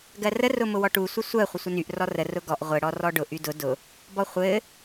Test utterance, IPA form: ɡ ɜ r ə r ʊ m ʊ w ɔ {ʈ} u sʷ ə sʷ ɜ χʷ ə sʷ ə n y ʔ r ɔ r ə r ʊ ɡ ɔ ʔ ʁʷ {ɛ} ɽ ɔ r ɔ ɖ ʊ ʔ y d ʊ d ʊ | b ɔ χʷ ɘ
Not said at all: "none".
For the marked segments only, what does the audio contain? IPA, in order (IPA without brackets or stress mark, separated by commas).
ʈ, ɘ